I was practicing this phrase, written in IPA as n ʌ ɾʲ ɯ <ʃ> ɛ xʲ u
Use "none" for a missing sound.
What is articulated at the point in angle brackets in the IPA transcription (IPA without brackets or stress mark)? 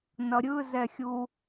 z